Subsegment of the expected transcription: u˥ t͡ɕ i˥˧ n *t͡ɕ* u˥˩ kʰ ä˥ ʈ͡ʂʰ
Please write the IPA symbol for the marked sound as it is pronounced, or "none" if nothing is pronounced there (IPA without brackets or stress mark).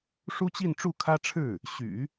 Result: ʈ͡ʂ